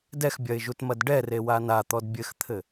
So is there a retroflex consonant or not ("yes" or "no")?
yes